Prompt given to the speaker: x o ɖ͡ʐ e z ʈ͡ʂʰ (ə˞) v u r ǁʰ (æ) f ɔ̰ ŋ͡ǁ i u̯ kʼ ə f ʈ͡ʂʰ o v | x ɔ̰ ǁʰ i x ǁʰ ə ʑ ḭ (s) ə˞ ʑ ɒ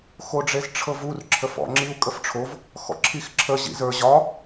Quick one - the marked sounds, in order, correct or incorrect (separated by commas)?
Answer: incorrect, incorrect, incorrect